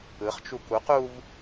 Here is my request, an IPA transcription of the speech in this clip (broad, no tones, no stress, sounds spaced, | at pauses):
ɯ χ t͡ʃ u k u q u v